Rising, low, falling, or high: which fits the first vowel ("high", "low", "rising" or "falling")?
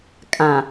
low